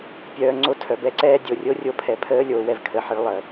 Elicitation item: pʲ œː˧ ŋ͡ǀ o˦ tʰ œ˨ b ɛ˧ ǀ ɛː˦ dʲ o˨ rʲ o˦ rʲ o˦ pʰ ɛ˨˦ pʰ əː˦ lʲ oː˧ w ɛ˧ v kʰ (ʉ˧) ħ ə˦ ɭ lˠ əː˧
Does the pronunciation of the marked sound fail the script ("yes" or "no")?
yes